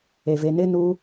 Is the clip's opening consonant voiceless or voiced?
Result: voiced